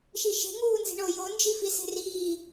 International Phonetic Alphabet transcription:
ʃ i ʃ e̤ ŋ uː n z i̤ ɳ o j o n d͡ʒ i f i s e̤ r iː

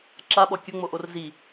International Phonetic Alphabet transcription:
ǁ a ɓ ɔ kʲ ʊ ŋ͡m o ʔ o r z i

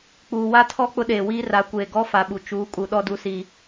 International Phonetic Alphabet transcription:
k͡p uː˨ w a˦ tʰ ɔ˦ k͡p ʊ˦ ɗ eː˨ w iː˦ r a˨˦ kʷ eː˨ ɡ ɔ˦ f a˨ ɓ u˨ t͡ʃ uː˨˦ kʼ u˨ ɗ ɔ˦ d u˦ s i˦

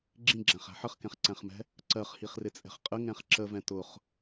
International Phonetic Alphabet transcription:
ɡ͡ǁ ĩ ɡ͡ǁ æ̃ χ æ̤ ħ ə χ k ɛ̃ χ ǀ æ̃ χ m ɛ̤ | ǀ ɜ χ h i χ r ɪ t͡sʼ ɛ̤ χ qʼ ə ŋ ɛ̃ χ ǁ ə v ɛ̃ t ʊ χ

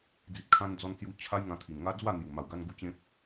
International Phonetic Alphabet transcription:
d͡z i˨ t̚ kʰ ã˧ n d͡z ɔ˧ n t͡s j u˧ t͡ɕʰ a˦ j ŋ ã˧ t̪ʰ i˨˩ n ŋ a˦ d͡z w a˥˧ n̪ j u˨˩ m a˨˩ w ɡ a˧ n ɡ u˧ t͡ɕ ẽ˦ p̚

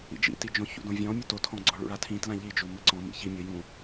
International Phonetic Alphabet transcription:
ḭ d͡ʒ ḭ t i d͡ʒ õ ç ṵ d õ vʲ ɔ̃ mʲ u t o tʰ ɔ̃ ɡ͡ǀ ɔ ɭ ṵ ɭ a tʰ ĩ t l ã ʎ i d͡ʒ u m ɘ ǀ ɔ̃ m ḭ ç i mʲ o j ũ

